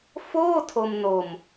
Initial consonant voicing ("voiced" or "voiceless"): voiceless